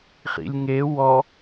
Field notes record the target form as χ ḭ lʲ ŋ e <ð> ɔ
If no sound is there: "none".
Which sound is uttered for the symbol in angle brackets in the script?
w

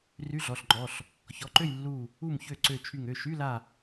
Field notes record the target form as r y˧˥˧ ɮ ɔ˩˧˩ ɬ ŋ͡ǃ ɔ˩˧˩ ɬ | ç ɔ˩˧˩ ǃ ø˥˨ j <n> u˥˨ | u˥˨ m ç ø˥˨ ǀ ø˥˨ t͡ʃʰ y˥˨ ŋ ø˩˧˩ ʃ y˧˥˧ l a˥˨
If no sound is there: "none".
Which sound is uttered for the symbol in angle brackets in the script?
lː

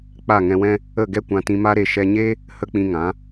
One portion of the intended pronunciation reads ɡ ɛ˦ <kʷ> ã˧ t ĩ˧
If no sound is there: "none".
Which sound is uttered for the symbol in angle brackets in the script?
kʷ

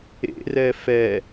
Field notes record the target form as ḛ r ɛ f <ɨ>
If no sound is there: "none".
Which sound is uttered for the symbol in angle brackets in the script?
ɛ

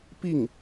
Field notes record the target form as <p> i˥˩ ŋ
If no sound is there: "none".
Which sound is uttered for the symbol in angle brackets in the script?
p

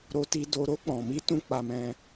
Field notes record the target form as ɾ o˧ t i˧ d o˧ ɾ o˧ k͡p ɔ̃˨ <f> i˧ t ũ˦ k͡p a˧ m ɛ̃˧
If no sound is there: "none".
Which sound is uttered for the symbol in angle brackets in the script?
m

